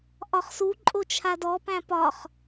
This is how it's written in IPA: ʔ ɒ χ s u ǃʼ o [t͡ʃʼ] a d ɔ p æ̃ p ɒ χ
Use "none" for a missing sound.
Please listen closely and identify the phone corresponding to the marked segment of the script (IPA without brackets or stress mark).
t͡ʃʰ